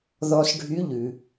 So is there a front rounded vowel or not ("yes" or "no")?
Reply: yes